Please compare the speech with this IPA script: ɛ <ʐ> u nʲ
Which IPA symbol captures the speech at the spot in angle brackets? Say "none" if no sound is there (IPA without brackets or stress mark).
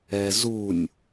z